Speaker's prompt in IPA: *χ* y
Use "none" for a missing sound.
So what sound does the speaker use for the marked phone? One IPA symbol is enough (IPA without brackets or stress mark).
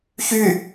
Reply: ç